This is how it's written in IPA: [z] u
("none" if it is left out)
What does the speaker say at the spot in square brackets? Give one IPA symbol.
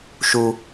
ʃ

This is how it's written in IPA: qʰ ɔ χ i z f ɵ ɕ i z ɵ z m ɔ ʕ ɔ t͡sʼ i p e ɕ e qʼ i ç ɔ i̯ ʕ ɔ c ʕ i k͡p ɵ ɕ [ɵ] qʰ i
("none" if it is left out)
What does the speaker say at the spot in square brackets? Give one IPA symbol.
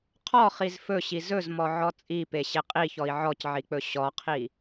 ɔ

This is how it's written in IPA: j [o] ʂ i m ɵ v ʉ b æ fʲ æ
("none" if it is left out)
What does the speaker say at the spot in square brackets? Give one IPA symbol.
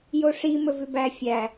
o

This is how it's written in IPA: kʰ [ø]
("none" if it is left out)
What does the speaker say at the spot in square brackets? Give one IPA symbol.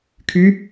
y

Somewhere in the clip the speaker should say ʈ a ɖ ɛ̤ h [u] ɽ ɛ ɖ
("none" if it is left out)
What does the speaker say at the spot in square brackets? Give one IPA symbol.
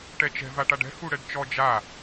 u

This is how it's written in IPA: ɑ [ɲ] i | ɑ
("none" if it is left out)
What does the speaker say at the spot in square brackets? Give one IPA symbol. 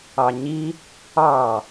ɲ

